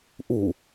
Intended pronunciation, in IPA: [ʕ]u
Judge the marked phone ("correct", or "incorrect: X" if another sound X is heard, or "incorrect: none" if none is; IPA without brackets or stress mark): incorrect: ʔ